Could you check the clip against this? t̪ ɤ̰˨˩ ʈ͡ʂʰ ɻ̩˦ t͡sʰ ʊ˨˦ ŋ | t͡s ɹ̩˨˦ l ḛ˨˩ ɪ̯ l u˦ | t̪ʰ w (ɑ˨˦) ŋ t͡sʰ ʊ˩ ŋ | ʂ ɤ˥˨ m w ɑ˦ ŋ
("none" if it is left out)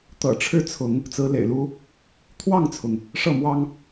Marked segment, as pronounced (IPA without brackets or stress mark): ɑ˥˨